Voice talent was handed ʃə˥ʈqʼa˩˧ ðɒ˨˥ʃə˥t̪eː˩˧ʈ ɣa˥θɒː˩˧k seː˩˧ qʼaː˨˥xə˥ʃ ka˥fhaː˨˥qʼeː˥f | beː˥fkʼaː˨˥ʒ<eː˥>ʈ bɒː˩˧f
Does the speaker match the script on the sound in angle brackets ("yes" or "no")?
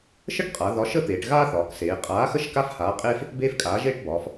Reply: yes